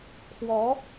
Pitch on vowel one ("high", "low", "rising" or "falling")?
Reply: rising